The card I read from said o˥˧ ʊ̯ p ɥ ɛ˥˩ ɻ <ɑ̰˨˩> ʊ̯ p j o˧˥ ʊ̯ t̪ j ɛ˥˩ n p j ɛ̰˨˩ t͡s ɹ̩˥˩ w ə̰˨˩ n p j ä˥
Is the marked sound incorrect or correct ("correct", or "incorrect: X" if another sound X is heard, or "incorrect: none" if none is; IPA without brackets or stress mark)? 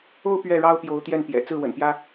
incorrect: ɑ˥